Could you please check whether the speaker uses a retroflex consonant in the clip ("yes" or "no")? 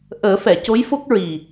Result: no